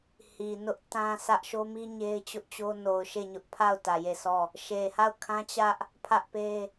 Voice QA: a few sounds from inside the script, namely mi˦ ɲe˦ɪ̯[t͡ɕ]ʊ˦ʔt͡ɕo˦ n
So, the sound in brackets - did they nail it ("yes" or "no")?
yes